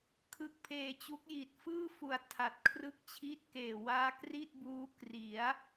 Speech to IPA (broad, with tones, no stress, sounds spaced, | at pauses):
kʰ ɯ˦˥ k̚ pʰ eː˧ t͡ɕ u˦˥ k̚ j i˨˩ t̚ f ɯː˥˩ f u˨˩ a̯ tʰ a˨˩ t̚ kʰ r ɯ˦˥ k̚ t͡ɕʰ i˦˥ t̚ k eː˨˩ w aː˦˥ k r i˥˩ t̚ b uː˦˥ k r i˩˦ a̯